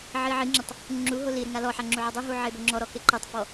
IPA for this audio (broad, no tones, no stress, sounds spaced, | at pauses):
ʕ i ʕ i ŋ͡ǁ ɪ tˤ | ŋ͡ǁ u ɦ o l i ɾ ɪ ŋ a l ɔ ħ a ŋ͡ǁ u ʕ ɔ dˤ u ɦ u ʕ e b o ŋ͡ǁ ɔ ɾ ɔ k e ǃ e tˤ f ɔ